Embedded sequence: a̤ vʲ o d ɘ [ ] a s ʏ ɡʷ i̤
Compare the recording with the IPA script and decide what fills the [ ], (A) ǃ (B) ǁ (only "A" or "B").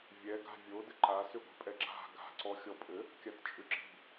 A